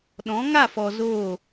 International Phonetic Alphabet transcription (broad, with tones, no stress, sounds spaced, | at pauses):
ɗ ɔ̃˨˦ ŋ a˦˨ f ɔ˨ z oː˦˨